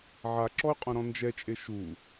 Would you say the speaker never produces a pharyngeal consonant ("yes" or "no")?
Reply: no